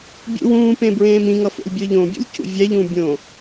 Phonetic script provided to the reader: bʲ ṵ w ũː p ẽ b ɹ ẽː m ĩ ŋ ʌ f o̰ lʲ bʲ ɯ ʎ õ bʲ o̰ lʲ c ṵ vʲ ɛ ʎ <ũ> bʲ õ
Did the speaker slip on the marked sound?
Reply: yes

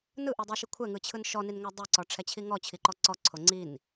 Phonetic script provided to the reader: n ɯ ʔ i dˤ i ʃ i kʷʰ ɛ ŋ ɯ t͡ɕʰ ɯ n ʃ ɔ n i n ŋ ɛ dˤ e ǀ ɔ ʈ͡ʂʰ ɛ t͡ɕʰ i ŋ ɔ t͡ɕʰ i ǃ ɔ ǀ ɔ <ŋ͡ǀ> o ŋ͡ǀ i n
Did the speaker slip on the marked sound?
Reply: yes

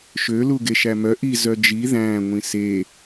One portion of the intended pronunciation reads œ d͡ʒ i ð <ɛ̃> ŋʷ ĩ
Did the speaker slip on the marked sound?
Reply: yes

